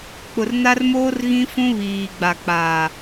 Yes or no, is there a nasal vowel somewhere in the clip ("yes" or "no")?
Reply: yes